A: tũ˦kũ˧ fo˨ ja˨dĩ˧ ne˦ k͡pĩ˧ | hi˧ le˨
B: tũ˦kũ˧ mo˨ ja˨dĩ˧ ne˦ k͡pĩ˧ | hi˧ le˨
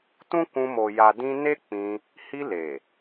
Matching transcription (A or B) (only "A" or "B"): B